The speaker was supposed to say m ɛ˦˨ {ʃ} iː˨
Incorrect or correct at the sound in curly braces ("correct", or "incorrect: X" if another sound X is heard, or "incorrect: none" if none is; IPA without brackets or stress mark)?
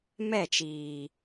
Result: incorrect: t͡ʃ